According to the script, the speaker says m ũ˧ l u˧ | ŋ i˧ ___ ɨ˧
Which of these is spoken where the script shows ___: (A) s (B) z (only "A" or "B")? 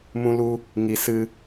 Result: A